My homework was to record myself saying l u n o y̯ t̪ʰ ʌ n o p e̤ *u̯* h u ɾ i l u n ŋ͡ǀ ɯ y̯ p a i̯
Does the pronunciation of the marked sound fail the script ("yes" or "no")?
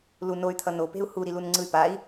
no